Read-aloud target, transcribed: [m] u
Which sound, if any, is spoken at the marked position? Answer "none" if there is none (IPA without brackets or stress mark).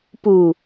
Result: p